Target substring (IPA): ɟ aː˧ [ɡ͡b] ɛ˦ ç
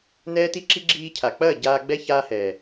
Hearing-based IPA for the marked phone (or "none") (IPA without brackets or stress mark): ɡ͡b